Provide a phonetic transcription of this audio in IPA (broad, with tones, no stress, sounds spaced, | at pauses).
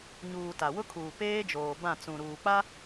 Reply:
ɲ uː˨ t a˨ w ʊ˦ kʰ uː˨ p eː˦ d͡ʒ oː˨ b ã˦˨ t͡s ũ˨ ɾ uː˨ k͡p a˦